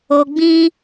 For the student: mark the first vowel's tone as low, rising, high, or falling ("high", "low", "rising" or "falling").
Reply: low